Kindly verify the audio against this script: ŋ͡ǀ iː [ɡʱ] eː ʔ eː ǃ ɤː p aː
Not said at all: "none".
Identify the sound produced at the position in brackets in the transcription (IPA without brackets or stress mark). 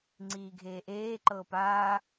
ɡʱ